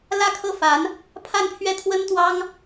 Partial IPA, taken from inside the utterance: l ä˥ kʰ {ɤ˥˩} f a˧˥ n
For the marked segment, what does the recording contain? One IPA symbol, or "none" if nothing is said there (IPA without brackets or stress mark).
ɤ˥˩